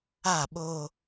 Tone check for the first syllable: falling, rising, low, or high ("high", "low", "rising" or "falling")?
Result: falling